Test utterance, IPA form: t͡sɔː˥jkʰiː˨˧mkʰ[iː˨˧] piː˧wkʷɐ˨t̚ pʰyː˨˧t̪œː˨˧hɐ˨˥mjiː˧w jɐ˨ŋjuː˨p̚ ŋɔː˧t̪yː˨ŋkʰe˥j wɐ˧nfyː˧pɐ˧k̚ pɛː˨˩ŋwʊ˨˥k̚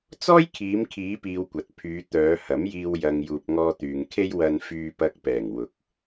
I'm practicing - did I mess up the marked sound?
no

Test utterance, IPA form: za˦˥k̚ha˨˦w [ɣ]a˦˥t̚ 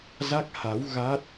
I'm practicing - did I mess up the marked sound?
no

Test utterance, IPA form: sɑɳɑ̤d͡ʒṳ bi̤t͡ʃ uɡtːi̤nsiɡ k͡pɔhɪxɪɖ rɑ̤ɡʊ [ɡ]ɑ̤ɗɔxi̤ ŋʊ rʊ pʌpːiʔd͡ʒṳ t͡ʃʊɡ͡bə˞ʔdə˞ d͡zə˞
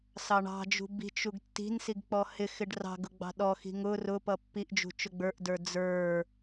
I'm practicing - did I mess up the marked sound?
yes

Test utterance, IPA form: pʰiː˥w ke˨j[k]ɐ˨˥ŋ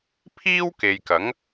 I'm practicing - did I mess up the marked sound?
no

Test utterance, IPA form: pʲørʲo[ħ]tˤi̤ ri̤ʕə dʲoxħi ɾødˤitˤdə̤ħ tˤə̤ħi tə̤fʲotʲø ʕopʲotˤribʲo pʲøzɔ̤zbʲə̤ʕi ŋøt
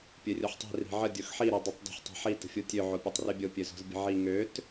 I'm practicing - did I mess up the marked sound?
no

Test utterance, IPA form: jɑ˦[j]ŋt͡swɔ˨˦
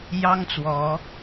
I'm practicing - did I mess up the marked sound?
yes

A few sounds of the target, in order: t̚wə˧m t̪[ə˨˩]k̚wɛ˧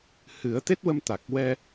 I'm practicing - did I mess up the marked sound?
yes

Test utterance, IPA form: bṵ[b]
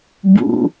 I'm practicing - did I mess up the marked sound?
yes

